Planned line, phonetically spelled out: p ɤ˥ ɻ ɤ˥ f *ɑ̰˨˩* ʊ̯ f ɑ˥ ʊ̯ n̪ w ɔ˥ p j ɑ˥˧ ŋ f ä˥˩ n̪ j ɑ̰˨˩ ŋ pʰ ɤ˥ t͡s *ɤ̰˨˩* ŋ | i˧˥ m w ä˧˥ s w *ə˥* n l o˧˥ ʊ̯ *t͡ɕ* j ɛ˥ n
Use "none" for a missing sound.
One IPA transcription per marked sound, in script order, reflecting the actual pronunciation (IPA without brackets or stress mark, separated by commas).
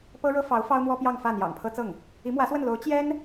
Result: ɑ˧˥, ɤ˥˩, ə˥˩, t͡ɕ